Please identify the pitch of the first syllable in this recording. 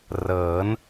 rising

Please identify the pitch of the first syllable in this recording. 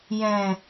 low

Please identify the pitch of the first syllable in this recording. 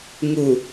low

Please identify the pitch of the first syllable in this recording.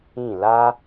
falling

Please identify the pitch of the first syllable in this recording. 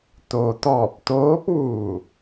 low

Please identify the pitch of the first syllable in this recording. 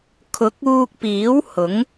rising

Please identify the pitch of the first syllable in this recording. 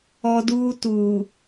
high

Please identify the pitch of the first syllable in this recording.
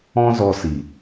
high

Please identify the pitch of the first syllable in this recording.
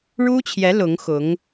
high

